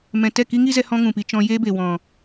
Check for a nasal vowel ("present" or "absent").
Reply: present